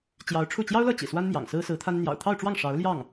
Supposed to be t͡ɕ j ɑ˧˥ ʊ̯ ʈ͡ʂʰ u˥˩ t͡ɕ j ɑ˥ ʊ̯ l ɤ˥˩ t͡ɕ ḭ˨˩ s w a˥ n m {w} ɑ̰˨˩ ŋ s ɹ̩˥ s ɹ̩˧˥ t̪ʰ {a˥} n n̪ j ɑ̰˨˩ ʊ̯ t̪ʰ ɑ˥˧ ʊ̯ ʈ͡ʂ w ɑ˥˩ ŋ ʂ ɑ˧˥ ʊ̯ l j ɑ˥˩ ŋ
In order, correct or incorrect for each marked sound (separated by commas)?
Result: incorrect, correct